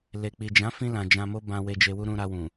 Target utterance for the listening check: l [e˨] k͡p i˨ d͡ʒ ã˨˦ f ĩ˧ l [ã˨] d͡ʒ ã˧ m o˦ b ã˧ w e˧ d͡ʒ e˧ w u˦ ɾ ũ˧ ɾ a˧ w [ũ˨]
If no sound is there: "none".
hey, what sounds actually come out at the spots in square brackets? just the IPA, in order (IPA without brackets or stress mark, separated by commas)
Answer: e˨, ã˨, ũ˨